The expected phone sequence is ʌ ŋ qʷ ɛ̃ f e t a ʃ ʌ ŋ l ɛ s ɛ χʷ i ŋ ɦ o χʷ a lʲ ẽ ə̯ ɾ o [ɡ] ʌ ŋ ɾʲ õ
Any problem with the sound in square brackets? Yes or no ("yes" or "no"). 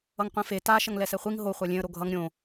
yes